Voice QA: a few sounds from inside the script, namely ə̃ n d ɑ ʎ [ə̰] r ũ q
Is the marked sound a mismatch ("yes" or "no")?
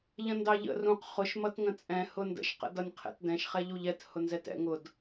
no